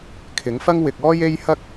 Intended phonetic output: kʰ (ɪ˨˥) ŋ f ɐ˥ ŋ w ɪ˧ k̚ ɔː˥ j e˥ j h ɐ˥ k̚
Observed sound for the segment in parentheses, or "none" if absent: ɪ˨˥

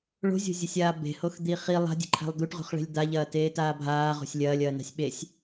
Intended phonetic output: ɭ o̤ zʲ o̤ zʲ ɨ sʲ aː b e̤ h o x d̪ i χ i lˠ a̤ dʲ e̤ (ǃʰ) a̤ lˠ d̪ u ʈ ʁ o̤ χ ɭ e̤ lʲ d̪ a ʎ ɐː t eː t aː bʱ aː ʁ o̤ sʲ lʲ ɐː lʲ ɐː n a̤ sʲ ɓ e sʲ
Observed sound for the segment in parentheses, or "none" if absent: ǃʰ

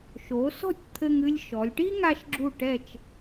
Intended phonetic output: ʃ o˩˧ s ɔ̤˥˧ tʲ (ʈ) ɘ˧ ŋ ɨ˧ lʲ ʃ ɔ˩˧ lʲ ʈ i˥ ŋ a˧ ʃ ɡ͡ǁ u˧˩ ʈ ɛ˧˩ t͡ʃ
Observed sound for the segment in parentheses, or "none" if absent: t̪ʰ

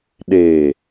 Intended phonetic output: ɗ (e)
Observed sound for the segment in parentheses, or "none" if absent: e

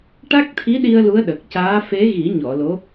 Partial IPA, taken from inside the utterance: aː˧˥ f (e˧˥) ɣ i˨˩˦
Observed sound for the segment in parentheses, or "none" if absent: e˧˥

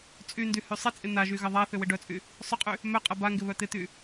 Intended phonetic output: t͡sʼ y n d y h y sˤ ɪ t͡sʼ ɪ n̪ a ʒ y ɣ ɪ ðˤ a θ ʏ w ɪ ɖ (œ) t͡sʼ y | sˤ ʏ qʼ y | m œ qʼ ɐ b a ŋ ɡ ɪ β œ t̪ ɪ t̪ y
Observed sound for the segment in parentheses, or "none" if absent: œ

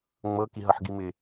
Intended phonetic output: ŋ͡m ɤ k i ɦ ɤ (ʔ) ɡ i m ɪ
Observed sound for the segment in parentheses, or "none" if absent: ħ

